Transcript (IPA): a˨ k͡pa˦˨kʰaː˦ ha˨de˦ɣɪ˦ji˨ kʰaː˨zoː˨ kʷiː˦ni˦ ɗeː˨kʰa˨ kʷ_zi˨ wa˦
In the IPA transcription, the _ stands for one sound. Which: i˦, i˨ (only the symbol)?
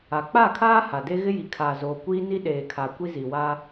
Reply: i˦